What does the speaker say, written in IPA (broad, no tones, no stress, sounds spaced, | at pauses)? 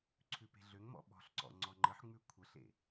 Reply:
ǀʰ ʉ p e̤ ɮ ø ŋ m ɔ̰ ɓ ɔ̤ ɬ ǀ ɔ̰ ŋ͡ǀ ɔ ŋ͡ǃ ə ħ ŋ͡m ʉ kʷʰ ə ɬ ḛ